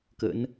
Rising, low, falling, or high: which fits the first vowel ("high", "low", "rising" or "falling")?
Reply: rising